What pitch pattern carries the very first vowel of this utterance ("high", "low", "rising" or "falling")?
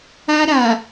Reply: high